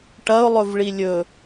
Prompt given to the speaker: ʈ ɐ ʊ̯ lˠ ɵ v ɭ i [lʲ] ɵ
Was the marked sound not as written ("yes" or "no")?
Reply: no